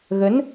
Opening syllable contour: rising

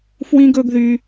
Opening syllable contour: high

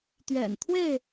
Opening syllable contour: low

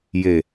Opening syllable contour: low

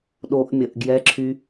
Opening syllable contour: high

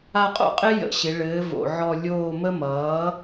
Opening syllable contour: falling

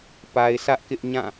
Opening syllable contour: low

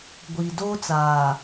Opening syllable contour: low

